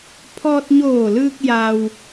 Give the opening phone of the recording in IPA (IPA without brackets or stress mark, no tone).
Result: pʰ